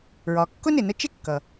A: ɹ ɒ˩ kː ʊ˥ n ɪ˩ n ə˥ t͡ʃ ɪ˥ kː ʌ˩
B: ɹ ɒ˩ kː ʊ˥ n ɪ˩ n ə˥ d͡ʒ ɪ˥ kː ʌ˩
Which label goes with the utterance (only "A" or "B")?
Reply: A